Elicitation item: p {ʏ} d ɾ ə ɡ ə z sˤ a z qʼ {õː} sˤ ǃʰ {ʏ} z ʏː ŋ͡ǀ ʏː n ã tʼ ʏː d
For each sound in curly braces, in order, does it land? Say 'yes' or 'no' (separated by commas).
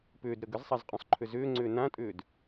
no, no, yes